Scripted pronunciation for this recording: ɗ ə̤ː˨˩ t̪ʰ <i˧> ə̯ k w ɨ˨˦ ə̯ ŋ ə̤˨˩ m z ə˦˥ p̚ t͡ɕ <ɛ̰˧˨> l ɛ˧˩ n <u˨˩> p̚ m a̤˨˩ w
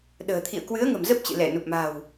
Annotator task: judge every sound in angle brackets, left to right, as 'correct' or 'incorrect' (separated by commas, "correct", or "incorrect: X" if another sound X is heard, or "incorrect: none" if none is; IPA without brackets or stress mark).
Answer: incorrect: ḭ˧˨, incorrect: ɨ̰˧˨, correct